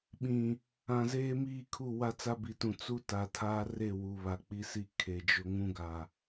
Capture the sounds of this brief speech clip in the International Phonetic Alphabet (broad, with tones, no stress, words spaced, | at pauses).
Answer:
ɓĩ˨ | ã˨zeː˦miː˦˨kʰu˦˨ wa˦t͡sa˦bi˨tũ˨ t͡su˦ta˨tʰaː˦ re˦˨wu˨βa˨ k͡pi˦si˦ kʰe˨d͡ʒʊ˦ ŋũ˦ɡa˨